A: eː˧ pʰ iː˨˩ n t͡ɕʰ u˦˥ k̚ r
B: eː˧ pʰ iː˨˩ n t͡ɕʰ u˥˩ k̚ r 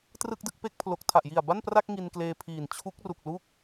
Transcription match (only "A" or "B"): A